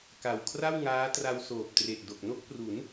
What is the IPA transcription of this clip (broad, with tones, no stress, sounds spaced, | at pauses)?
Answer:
k a˨˩ w kʰ r a˥˩ w ŋ aː˦˥ t r a˧ w s oː˨˩ p̚ t r e˨˩ ʔ d o˨˩ k̚ n o˥˩ k̚ p r u˩˦ n